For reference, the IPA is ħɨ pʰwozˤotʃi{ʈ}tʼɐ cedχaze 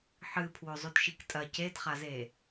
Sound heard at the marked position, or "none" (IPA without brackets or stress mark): k